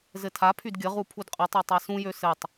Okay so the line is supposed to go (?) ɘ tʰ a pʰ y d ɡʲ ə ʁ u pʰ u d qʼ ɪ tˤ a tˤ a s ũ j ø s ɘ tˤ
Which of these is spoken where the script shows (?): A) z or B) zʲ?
A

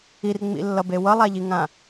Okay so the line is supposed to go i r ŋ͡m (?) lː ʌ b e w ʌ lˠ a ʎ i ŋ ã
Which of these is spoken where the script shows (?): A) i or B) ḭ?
B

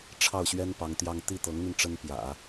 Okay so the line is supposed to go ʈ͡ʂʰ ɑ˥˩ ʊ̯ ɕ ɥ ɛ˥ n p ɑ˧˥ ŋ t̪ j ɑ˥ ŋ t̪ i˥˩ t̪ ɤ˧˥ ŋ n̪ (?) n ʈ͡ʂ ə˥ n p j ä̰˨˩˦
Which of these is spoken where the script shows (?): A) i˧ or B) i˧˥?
A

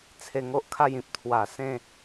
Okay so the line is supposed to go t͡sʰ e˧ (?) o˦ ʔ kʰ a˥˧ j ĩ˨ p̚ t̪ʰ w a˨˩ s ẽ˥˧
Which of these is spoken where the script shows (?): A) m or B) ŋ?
B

